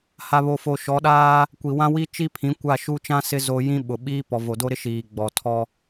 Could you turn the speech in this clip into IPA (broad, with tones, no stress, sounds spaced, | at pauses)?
h a˨ β o˨ f o˨ ʃ ɔ˨˦ ɗ aː˦ | kʷ i˨ w ã˦ w i˦ t͡ʃ i˦ pʰ ĩ˨˦ kʷ a˦˨ ʃ u˦ t͡ʃ ã˦ s ɪ˦ z o˦ j ĩ˦ ɓ ʊ˨ ɓ iː˦ p ɔ˨ v o˨ d o˦ ɾ ɪ˦ ʃ iː˨ ɡ͡b ɔ˨ tʰ ɔ˦